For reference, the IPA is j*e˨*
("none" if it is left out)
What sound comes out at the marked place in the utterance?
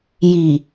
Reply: i˨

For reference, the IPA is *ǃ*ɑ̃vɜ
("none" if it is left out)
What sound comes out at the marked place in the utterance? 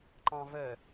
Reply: ǃ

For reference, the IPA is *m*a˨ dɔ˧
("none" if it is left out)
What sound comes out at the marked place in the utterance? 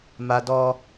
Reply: m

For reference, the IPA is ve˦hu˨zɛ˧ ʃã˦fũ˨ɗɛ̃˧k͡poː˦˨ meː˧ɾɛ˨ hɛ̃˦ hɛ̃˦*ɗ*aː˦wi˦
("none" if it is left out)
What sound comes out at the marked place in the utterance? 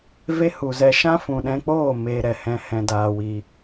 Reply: d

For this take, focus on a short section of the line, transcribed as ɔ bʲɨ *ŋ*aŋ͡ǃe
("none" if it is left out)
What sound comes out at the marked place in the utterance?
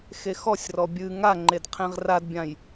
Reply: ŋ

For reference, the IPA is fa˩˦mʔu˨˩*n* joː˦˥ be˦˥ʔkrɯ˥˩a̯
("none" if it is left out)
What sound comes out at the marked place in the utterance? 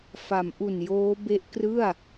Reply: n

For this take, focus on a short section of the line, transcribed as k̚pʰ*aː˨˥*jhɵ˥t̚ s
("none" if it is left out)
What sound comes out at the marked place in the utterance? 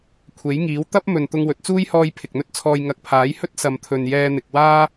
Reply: aː˨˥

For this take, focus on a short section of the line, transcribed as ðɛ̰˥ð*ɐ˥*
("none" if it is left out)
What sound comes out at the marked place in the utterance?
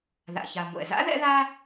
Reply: a˥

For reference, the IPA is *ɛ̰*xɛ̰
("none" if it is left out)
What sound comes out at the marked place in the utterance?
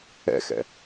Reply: ɛ̰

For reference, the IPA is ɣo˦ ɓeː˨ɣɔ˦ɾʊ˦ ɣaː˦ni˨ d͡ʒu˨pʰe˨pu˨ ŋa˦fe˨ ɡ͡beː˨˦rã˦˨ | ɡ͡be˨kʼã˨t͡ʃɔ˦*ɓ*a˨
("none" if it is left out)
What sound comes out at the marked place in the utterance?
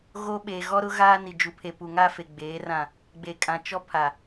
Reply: pʰ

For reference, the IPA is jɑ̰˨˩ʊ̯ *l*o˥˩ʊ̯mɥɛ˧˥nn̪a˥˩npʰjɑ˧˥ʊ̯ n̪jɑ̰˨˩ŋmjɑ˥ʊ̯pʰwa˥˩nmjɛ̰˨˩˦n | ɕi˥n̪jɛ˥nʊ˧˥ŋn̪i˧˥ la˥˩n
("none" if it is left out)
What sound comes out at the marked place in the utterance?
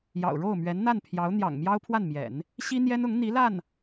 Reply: ɻ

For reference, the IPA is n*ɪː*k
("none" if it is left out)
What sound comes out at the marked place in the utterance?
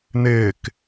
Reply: ɪː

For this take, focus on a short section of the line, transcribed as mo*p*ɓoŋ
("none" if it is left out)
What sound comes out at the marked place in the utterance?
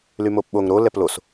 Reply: p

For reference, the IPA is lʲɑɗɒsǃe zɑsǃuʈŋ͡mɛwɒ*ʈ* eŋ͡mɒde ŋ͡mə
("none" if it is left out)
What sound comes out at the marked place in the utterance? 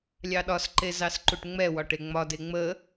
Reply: ʈ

